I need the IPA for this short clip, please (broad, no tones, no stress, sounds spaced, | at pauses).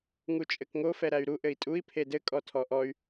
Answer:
ŋ u t͡ʃʼ ɘ k ŋ o f ɛ ɾ æ y̯ ɾ u ʔ ɘ i̯ tʼ u i̯ pʰ e d ɘ kʼ ɔ tʰ ɔ ʔ ɔ y̯